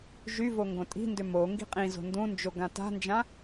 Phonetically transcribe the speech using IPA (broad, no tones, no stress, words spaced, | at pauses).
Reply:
ʒyvo ŋɡõtʼi̤ndʏ mo ŋɡi̤qʼĩzo̤ ndũnd͡ʒo ɡãta̤nd͡ʒã